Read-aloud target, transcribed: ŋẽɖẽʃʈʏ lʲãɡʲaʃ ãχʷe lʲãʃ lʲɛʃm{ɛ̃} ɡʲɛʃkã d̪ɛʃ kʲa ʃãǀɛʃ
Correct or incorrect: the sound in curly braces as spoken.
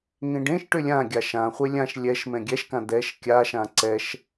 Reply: correct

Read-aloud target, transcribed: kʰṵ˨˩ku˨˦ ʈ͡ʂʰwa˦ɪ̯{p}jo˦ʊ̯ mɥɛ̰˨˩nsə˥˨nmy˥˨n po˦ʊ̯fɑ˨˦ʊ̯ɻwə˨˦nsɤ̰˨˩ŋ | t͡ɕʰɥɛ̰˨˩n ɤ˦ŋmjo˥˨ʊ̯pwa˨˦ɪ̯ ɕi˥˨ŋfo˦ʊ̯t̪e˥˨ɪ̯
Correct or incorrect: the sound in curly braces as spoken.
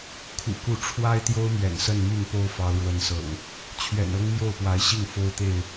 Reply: incorrect: t̪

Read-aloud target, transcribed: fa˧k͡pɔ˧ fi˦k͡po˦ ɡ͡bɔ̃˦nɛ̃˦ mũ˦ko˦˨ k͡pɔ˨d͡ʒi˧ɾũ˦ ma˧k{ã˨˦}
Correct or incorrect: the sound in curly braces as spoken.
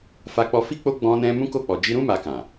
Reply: incorrect: ã˨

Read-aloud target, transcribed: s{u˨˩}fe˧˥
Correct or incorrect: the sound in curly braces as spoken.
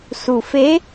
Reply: correct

